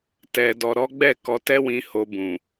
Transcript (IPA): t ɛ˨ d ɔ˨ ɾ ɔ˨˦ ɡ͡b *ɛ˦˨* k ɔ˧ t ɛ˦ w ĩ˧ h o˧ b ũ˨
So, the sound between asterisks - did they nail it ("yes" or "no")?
yes